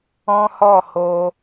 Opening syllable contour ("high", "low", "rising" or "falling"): high